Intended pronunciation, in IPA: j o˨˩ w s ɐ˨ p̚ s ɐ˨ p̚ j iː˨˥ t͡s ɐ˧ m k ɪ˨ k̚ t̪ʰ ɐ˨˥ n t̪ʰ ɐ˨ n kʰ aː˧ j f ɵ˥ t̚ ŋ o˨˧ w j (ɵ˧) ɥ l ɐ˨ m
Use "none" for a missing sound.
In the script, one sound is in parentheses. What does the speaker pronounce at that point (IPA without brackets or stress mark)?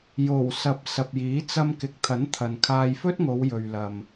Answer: ɵ˨